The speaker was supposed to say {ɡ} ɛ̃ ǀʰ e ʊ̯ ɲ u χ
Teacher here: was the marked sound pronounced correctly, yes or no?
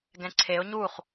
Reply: yes